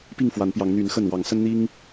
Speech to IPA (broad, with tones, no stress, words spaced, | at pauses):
pi˥˨ŋfwa˨˦npjɑ˨˦ŋ n̪y˨˦n xə˥˨n wɑ˨˦ŋsə˦nn̪i˦ŋ